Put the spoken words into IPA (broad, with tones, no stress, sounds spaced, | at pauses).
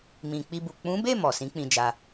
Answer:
m ĩ˨ k͡p i˧ b u˨ k͡p ũ˨˦ b e˦˨ m ɔ˨ s ĩ˨˦ k͡p ĩ˧ d͡ʒ a˧